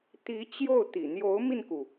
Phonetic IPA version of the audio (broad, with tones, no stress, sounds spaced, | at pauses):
t̪ i˧˥ t͡ɕ j o˥˩ ʊ̯ t̪ ḭ˨˩ n̪ j o˧˥ ʊ̯ m i˧ n k u˩